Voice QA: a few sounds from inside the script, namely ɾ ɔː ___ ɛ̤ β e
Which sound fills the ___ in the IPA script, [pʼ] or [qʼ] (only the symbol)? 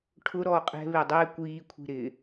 qʼ